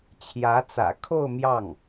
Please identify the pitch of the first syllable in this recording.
rising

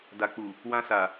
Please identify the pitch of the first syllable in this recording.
low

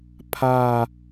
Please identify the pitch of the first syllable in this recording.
high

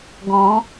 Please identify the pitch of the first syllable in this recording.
rising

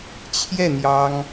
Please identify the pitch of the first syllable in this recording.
falling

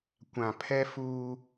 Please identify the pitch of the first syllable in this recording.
low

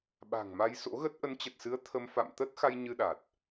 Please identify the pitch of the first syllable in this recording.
low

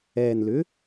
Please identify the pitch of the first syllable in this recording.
low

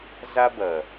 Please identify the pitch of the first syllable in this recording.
high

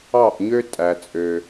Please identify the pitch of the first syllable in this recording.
falling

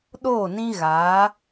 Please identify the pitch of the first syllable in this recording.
falling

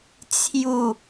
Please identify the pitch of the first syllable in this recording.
low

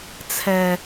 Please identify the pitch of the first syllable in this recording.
high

